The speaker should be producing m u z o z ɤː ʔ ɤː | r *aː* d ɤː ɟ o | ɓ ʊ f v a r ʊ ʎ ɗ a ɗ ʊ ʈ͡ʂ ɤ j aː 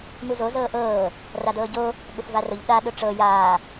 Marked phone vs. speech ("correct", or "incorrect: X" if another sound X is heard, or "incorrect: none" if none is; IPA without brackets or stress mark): incorrect: a